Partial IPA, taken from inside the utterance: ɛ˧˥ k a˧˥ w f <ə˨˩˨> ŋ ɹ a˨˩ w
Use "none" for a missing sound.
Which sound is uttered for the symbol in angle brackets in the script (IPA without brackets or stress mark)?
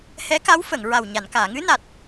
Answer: ə˨˩˨